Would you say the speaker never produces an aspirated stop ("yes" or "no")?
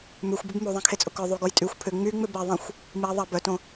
no